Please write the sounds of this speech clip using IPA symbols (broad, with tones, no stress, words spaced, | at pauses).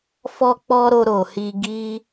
fɔ˦k͡pɔ˦ɾo˧ ɾo˨hi˧ ɡi˦